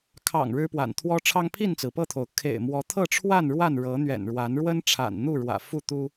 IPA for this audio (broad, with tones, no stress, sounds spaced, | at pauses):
kʰ ɑ̰˨˩ ŋ ɻ ɻ̩˦ p w a̰˨˩ n t̪ʰ w ɔ˦ ʈ͡ʂʰ ɑ˦ ŋ pʰ i˥˨ n t͡s ɹ̩˩ p ɤ˥˨ t̪ʰ o˩ ʊ̯ kʰ ḛ˨˩ ɪ̯ m w ɔ˨˦ t̪ʰ ɤ˥˨ ʈ͡ʂʰ w a˥˨ n ɻ w a˥˨ n ɻ ɤ˨˦ n̪ ɥ ɛ̰˨˩ n ɻ w a˨˦ n ɻ w ə˦ n ʈ͡ʂʰ a̰˨˩ n n̪ u˥˨ ɻ w ä̰˨˩ f u˥˨ t̪ u˦